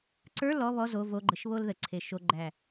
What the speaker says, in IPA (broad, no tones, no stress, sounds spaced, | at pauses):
ǀ ə˞ l ɔ β ɔ z o v o ɡ͡ǃ ə ʃ β o l ð ə ǀʰ e ʃ o ɡ͡ǃ æ